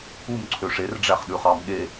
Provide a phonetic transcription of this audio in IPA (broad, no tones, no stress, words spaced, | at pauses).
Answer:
umǀʰø ʂerɖ͡ʐæχɗʉχɑm ɠe